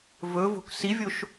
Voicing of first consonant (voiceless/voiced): voiced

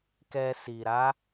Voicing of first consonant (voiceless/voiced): voiceless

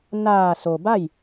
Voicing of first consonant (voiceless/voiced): voiced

